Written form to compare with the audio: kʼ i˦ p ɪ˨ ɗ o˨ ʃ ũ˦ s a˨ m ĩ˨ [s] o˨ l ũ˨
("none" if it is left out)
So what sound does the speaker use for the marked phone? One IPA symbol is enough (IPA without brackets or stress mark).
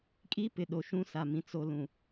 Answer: t͡s